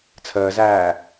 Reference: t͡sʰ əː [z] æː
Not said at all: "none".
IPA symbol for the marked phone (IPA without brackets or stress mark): z